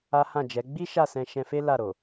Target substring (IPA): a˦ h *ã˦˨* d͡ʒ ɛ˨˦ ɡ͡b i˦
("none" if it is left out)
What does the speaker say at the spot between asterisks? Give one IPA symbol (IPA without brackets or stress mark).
ã˦˨